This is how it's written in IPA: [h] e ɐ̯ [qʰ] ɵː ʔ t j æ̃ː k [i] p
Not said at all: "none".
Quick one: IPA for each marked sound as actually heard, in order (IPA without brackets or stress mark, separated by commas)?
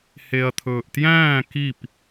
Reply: h, t̪ʰ, i